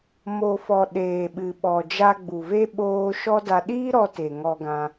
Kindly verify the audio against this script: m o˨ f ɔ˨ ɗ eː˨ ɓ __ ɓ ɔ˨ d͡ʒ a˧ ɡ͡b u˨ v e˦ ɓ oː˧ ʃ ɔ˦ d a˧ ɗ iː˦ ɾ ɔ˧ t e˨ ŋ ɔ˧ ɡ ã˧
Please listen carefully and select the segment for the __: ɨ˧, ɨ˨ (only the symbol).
ɨ˨